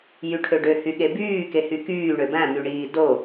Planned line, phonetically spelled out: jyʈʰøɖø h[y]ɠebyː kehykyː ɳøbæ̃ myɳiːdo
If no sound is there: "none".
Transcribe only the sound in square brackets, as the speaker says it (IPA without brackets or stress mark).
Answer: y